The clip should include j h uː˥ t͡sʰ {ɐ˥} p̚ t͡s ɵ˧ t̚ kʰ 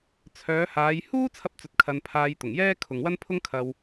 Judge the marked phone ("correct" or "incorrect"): correct